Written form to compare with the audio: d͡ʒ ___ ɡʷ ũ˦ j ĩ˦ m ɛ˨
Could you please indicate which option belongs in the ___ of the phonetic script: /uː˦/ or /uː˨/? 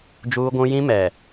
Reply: uː˦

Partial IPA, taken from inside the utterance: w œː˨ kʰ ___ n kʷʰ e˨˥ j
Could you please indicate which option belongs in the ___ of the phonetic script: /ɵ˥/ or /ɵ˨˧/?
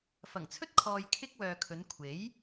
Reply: ɵ˨˧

